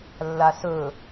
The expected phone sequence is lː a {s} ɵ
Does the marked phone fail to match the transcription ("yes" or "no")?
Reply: no